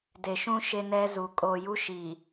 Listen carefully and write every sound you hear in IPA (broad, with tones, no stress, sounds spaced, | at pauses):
d e˨ ʃ ũ˦ ʃ e˦ n ɛ˦ z u˨ kʼ o˨ j u˦ ʃ i˨